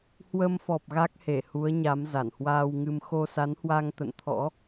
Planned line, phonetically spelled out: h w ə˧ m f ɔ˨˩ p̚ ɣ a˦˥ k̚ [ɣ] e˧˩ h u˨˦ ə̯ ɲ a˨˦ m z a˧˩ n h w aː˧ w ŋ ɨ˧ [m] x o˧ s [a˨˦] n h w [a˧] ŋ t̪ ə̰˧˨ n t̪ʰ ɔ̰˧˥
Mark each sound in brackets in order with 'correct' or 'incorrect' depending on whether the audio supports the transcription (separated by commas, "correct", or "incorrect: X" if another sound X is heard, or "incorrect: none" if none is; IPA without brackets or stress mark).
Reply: incorrect: h, correct, correct, correct